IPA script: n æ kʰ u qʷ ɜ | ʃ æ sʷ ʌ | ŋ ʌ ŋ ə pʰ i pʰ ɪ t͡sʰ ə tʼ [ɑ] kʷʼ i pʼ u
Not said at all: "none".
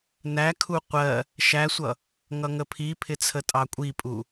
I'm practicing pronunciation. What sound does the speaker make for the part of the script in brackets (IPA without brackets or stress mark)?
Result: ɑ